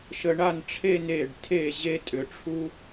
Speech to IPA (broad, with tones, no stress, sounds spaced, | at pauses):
ʃ ə˧ ɳ a˥˧ n ʈ͡ʂʰ e˥˧ n e˧˩ ɖ tʰ e˧˩ ʑ e˥ tʼ ʏ˩˧ ʈ͡ʂʰ u˥